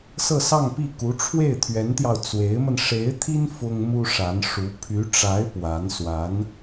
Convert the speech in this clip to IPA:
s ɤ˥˧ s ɑ˥˧ ŋ p i˥˩ k u˧˥ ʈ͡ʂʰ w e˥˩ ɪ̯ t̪ʰ ɥ ɛ˧˥ n t̪ j ɑ˧ ʊ̯ t͡s w e˧˥ ɪ̯ m ə˧ n ʂ e˧˥ ɪ̯ t̪ʰ i˥ n f ʊ˥ ŋ m u˥ ʂ a˧˥ n ʂ u˧˥ pʰ y˧˥ ʈ͡ʂ a˧˥ ɪ̯ p w a˧˥ n s w a˧˥ n

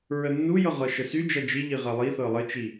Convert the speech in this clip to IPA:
ɹ ə nː u j ɤ ʁ ɤ ʃ ə s y d͡ʒ ɐ d͡ʒ i ʎ i ʁ ɐ lˠ i θ ɤ lˠ ə t͡ʃ i

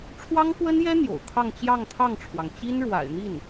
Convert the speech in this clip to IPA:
ʈ͡ʂʰ w ɑ˥ ŋ k w ə˥ n j ɛ˥ n̪ j o̰˨˩ ʊ̯ kʰ ɑ˥˧ ŋ t͡ɕ j ɑ˥˧ ŋ t̪ʰ ɑ˥˩ ŋ ʈ͡ʂʰ w ɑ˩ ŋ t͡ɕ i˥ n ɻ w a̰˨˩ ɪ̯ n̪ i˥˩ n

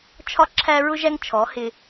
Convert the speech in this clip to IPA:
t͡ʃʰ ɒ˦ ǁʰ æ˦ ɹ ʊ˦ ʒ æ˦ ŋ t͡ʃʰ ɔ˨˦ h ɪ˧

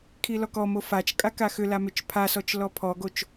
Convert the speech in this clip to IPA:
kʰ i l ɔ k ɔ m o f a t͡ʃ kʼ a k a x ʏ l a m ʏ t͡ʃ pʰ a s ɔ t͡ʃ l ɔ pʰ ɔ ɡ o t͡ʃ

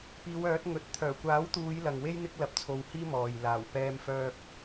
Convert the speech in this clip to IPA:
p iː˨˧ w œː˨˥ t̚ ŋ ɵ˨˥ t̚ t̪ʰ œː˨˩ kʷ aː˨˥ w t̪ uː˨˧ j l ɐ˨ ŋ w e˥ j n̪ ɪ˥ k̚ l ɐ˧ p̚ t͡sʰ o˧ w h iː˥ m ɔː˨ j l aː˨˩ w p ɛː˥ m f œː˥ k̚

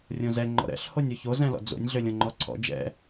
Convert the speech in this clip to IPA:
rʲ õ z ɛ ŋ͡ǃ ɔ̰ ɾ ɛ̰ ɬ h o nʲ o ç o z ɛ̃ l ɔ̰ d͡z o̰ nʲ ɮ ø lʲ õ ŋ͡ǃ ɔ ǀʰ ɔ̰ d͡ʒ ɛ̰

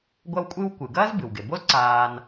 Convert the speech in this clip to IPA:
ɡʷ ɐ˦ w kʷʼ ɨ˦ w kʷ ɨ˩ ɡ ɐː˥ z b ɨ˩ w ɡ e˩ b o˥ z ǀ aː˨ n

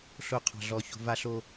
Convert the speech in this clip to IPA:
ɬ o˨ qʰ ɑ̤˨ ɮ ɔ˨ ç o̤˨ v a˦ ɬ o˦

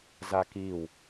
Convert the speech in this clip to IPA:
z a k i w

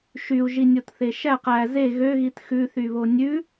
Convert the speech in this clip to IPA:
ʃ y u̯ ʒ i nʲ o t θ e ʃ æ q æ z e ɣ ø ɣ i t x ʉ θ y β o nʲ ʉ

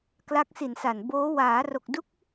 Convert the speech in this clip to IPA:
k l a˦˥ k̚ s i˨˩ n s a˨˩ n b oː˦˥ w aː˩˦ r o˨˩ k̚ d u˦˥ k̚

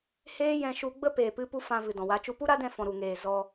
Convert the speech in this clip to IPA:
h eː˦ j ɛ̃˧ ʃ u˧ ɡ͡b ə˦ p eː˨ p ɨ˧ p u˦ f ã˧ v ɨ˨ d ɔ̃˨ w a˨˦ t͡ʃ u˧ p u˦ ɾ a˦ d ɛ̃˧ f ɔ̃˨ ɾ u˨ ŋ eː˨ z ɔ˧

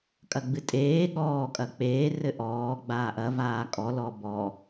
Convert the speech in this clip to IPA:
kʼ ɐ ɡ͡b ɨ tʼ eː ɠ ɔː kʼ ɐ k͡p eː r ɘ ʔ ɔː ɡ͡b aː ʔ ɐ v aː kʼ ɔ l ɔ b ɔ

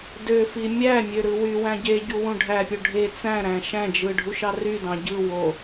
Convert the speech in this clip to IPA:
d ø f i mʲ æ mʲ ø ɾ ɯ w y w æ̃ ɟ e ɟ u w ũ ɖʱ æ pʲ o ɖʱ e t͡s æ̃ ɾ æ̃ ʃ æ̃ d͡ʒ ɯ ɖʱ u ʃ ɑ r y d ɑ̃ ɟ ɯ w o

